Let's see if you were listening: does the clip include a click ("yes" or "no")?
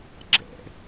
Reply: yes